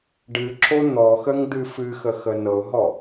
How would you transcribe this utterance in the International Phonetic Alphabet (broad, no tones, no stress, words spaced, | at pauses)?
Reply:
ɖɨ ǁon̪ɔxəŋ d̪ɨfɨxə xənɤʊ̯ɦɔ